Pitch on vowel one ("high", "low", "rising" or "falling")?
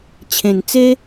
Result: low